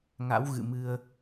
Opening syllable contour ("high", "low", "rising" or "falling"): rising